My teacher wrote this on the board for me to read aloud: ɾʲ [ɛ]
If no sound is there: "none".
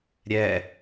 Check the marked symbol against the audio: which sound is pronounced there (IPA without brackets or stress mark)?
ɛ